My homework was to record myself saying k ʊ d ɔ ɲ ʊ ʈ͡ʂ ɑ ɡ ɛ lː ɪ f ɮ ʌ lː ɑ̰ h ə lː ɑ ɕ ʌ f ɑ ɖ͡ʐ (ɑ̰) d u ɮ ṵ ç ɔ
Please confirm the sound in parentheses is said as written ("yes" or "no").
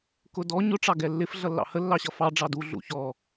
no